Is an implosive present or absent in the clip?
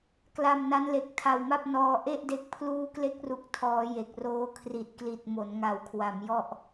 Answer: absent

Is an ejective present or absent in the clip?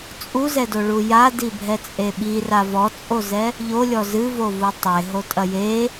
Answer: present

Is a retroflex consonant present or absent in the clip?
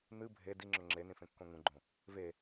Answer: absent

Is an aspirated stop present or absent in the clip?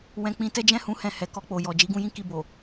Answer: absent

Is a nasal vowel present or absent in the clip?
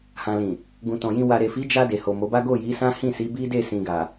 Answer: present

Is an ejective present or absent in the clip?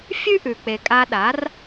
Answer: present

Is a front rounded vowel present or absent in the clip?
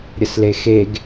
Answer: absent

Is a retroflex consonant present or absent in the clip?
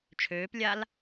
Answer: absent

